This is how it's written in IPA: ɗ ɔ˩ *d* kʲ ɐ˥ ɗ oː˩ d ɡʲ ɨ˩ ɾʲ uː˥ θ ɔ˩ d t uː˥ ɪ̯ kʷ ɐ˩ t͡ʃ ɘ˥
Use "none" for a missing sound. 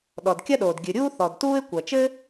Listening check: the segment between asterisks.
d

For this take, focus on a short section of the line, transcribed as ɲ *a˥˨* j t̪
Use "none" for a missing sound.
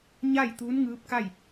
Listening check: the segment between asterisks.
a˥˨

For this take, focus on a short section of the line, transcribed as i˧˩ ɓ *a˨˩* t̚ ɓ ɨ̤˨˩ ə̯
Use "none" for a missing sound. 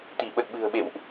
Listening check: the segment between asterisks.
ə˨˩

